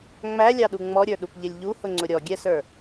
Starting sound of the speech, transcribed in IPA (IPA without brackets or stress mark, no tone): ŋ͡m